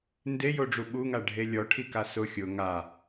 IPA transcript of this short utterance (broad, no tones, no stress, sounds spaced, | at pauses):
n d e j o ɖ͡ʐ u ɓ u ŋ a ɖʱ e lʲ ɔ ʈʰ i k a s ʊ xʲ ʊ ŋ a